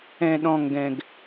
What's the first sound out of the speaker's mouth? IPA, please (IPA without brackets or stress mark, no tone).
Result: ɛ̃